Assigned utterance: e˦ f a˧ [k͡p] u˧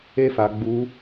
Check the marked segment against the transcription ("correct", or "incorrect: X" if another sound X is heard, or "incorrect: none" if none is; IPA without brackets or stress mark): incorrect: ɡ͡b